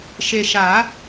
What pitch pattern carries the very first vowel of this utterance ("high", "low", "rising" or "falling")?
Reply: low